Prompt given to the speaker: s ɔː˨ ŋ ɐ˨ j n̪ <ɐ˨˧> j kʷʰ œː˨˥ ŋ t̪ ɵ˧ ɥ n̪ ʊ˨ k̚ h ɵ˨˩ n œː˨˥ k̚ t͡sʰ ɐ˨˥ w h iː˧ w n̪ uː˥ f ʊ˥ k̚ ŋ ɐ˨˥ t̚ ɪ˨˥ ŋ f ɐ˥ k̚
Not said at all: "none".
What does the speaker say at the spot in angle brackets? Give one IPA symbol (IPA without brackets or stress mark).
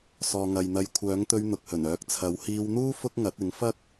ɐ˨˧